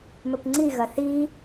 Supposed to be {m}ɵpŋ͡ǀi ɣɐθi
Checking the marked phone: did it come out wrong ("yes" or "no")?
no